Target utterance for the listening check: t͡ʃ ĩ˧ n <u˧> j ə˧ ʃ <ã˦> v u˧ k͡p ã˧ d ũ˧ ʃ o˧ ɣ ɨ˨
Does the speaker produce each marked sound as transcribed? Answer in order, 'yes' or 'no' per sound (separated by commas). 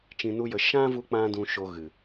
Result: no, yes